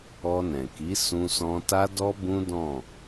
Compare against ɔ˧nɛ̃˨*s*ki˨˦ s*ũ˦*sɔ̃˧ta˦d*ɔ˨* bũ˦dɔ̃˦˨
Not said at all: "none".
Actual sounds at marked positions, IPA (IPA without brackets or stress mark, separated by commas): none, ũ˧, ɔ˦